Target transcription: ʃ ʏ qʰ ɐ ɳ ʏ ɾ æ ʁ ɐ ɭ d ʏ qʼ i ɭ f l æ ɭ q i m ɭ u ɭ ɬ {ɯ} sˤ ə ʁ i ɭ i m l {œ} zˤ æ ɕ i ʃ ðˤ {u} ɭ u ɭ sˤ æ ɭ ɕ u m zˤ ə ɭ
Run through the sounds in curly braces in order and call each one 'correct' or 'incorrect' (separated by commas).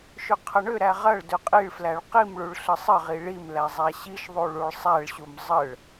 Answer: incorrect, incorrect, correct